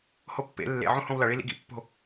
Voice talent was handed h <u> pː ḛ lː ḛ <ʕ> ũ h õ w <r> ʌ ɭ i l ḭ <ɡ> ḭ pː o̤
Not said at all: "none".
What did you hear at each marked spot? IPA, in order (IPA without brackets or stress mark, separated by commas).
o, ʕ, l, ɡ